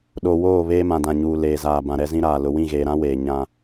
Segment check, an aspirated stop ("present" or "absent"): absent